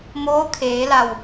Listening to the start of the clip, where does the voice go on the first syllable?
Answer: rising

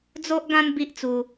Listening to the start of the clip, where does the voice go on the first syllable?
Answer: high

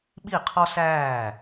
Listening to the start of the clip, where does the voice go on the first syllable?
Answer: falling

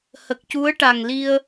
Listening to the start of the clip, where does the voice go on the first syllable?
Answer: low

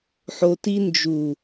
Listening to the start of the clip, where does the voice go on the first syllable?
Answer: low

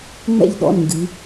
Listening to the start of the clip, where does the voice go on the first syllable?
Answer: falling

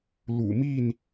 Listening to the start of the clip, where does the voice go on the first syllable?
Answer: low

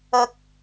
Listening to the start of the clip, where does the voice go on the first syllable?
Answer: high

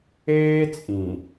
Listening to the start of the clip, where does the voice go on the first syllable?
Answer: high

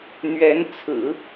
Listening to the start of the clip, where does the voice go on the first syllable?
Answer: rising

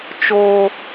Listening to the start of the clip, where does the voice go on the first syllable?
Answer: high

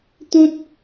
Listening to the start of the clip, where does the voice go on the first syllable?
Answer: high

